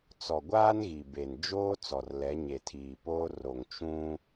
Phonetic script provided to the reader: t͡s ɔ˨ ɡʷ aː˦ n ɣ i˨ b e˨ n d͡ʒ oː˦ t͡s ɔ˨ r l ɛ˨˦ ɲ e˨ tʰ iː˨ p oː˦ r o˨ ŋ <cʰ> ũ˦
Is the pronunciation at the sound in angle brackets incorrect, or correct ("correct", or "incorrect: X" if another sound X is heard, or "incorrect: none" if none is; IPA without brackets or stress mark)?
incorrect: t͡ʃ